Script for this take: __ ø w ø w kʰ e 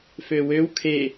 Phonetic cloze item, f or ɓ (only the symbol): f